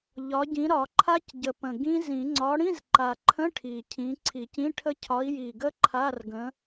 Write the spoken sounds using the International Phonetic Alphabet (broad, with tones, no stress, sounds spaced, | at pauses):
ʎ ɒ˨˦ ɟ ĩ˨˦ ɾ ɒ˨˩˦ ǃʰ a˦˥ c ɟ ə˨˩ p ə̃˨˩ ɡ ĩ˦˥ z ĩ˨˩˦ ŋ͡ǀ ɒ˨˦ ɽ ĩ˧˥˧ z ǃ a˨˩ ǃʰ ə̃˧˥˧ ʈʰ i˨˩ cʰ ĩ˨˦ ǀʰ i˨˩˦ c ĩ˧˥˧ ʈʰ ə˦˥ cʰ ɒ˨˦ i̯ j i˨˩ ɡ ə˦˥ ǃʰ a˧˥˧ r ɡ ə̃˨˦